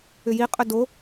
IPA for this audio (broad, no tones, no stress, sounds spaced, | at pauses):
ʏ j i qʼ ʏ d o